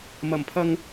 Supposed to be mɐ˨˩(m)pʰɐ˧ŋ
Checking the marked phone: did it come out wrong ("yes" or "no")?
no